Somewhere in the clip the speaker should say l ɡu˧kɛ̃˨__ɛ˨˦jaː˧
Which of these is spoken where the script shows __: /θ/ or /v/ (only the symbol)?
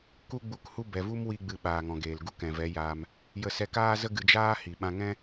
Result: v